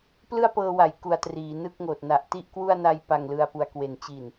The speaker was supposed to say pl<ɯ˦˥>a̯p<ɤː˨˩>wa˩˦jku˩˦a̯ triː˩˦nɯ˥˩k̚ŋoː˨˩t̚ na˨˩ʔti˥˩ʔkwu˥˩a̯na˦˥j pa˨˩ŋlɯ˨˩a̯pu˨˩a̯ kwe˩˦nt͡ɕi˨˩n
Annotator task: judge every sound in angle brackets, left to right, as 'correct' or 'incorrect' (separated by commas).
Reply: incorrect, incorrect